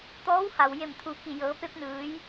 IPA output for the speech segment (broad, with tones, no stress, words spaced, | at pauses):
t̪ɔː˧˥wha˩wje˧˩m t̪ʰu˩ ki˧˩jɤː˩˧pe˧˥p̚ nɯː˩˧j